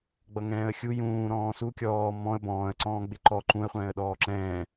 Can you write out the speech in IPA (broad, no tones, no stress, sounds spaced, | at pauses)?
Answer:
ɡ͡b ʌ ŋ ɛ̃ː ə̯ xʲ u j ũː ɾ ɔ̃ː s u kʲ ɔː m ɔ̃ ə̯ b ɔ̃ː ə̯ ǀ ɔ̃ː ɡ͡b ɪ ǃ ɔ ǃ ũ ə̯ χʷ ɛ̃ː ə̯ ɗ ɔː ǁ ɛ̃ː